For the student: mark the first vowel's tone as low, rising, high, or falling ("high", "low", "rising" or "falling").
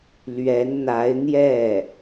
rising